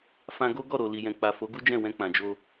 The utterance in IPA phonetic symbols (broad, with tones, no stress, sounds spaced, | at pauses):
f ã˧ ɡ o˦ ɡ ɔ˦˨ ɾ o˨ l i˨ j ɛ̃˨ k͡p a˨ f o˨˦ ɡ u˦ d͡ʒ ɛ̃˦˨ w ɛ̃˧ k͡p ã˨ d͡ʒ o˧